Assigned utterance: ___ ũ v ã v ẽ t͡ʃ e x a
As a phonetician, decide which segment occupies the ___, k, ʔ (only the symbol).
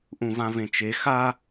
ʔ